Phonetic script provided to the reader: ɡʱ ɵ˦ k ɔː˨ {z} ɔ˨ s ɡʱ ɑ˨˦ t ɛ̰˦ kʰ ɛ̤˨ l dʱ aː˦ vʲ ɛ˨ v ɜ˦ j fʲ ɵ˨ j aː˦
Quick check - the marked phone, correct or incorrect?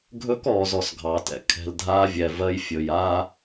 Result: correct